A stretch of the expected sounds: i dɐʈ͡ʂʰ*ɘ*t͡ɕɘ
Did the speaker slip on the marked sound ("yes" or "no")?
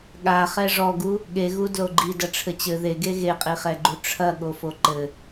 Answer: no